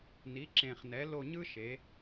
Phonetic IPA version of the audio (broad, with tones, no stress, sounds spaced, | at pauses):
n i˩˥ ǁ ẽ˨˩ χ n ɛ˩˥ l o˦˨ ɲ ɯ˥ ʃ e˩˥